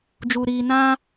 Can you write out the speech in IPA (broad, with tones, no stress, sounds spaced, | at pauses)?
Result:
d͡ʒ u˧ ɾ iː˧ n ã˦